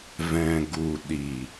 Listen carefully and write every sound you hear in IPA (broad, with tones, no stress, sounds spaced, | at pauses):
v ɛ̃˨ ɡ u˨ ɗ i˨